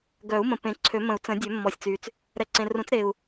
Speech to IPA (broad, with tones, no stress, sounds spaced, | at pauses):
ɡ œ˨˩˦ u̯ m ə̃˨ p ẽ˨ ǀʰ ø˨˩˦ m ə̃˨˩˦ u̯ t͡s ə̃˨˩˦ dʲ ø˨˩˦ mː ɔ˨ sʲ t͡s y˨ t͡s | ɾ ɛ˨ ǀ ẽ˨ r ũ˨˩˦ t͡s ɾ e˨ u̯